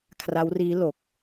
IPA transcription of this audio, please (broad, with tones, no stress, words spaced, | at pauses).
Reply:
kʰra˦˥wriː˦˥ lo˨˩k̚